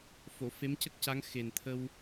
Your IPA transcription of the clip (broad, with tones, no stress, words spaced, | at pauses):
fo˨˩˨ fe˧˥mcə˦˥k̚ca˧˥ŋ xe˨˩nt̪ʰə˧w